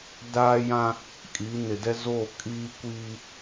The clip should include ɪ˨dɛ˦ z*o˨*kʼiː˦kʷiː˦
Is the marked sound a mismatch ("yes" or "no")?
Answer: yes